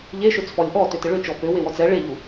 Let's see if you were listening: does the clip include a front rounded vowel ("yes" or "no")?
yes